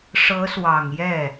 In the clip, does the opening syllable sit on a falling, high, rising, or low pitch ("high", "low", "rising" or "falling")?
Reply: rising